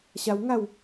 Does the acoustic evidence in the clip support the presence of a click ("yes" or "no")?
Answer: no